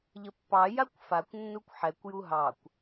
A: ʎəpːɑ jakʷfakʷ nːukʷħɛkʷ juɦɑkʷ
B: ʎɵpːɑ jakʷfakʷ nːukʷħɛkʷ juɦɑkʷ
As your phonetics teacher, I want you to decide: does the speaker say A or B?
A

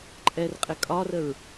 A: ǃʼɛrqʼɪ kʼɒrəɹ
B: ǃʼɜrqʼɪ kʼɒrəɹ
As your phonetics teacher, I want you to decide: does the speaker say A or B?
A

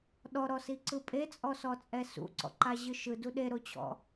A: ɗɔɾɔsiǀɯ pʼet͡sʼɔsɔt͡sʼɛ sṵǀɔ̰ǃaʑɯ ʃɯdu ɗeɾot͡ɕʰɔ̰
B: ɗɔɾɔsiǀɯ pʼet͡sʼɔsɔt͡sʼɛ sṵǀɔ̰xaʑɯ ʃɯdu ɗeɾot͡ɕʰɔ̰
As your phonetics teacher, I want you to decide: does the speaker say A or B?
A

